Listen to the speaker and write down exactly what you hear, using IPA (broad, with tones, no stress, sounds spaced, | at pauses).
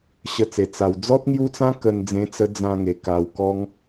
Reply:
ɕ ə˧ t͡s e˨˩ t͡s a˨˩ w d͡z ɔ˦ t̚ ŋ j u˦ t͡s ã˦ k ə˧ n d͡z ẽ˧ t͡s ə˧ d͡z ã˧ ŋ e˨˩ k a˧ w k ɔ˦ ŋ